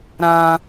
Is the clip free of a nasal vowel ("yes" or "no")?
no